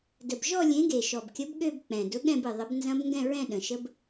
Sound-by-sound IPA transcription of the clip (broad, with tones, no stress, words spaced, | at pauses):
də˨˩bʒɔ˥˧lʲẽ˨˥ɡe˨˩ ʃɔ˨˩bkʲə˨˥b ɠø˥˧b k͡pɛ̃˨˩ dʊ˨˥ɠɛ̃˥˧bɨ˨˩ ðˤə˨˥bnzɐ̃˦˥bŋɡɛ̃˥˧ɹɛ̃˥˧ ɗə̃˨˩ʃə˦˥b